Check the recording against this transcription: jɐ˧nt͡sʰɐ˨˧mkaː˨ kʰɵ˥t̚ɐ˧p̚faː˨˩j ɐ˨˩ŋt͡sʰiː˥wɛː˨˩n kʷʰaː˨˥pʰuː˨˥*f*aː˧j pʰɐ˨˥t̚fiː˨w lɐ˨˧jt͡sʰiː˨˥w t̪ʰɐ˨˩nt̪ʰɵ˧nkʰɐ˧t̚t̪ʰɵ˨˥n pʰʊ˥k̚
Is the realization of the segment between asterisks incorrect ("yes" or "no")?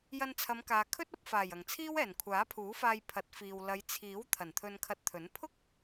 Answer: no